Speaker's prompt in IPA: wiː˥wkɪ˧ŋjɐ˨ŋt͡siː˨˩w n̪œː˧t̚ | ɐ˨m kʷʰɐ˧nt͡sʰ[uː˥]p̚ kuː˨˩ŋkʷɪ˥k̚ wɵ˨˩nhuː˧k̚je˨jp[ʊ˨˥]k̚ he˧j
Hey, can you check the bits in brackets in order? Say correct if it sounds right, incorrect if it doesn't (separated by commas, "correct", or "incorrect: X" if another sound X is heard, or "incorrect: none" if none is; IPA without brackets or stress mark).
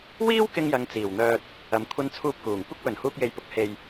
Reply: incorrect: uː˧, correct